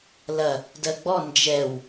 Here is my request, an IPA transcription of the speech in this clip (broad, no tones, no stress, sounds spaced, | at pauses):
l ɐ | d ɜ ɡ͡b ɔ n d͡ʒ ɛ w